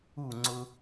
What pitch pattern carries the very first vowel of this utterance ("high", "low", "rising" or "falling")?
falling